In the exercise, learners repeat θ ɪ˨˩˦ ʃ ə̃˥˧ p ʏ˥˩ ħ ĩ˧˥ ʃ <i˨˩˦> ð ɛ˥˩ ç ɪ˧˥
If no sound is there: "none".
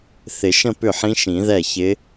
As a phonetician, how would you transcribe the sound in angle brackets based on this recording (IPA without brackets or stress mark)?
ĩ˨˩˦